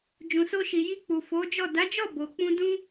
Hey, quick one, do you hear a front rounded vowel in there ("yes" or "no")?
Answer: no